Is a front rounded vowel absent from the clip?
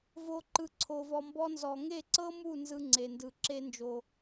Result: yes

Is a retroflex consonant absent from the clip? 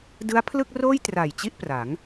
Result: yes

